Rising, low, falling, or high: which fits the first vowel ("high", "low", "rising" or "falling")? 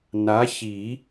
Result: rising